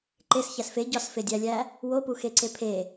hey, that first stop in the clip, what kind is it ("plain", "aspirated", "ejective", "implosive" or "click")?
click